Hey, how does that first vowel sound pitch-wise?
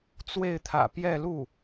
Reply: falling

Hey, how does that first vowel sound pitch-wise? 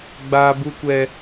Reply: high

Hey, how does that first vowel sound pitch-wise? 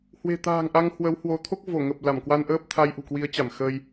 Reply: low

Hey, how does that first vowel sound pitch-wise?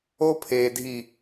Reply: high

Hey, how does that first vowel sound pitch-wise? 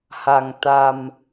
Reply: low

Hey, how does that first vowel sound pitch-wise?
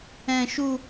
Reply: high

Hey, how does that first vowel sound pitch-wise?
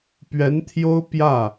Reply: rising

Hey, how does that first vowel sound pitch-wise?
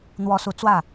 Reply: rising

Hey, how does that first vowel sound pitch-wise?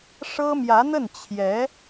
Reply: high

